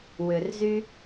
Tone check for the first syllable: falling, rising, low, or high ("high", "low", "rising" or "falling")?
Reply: low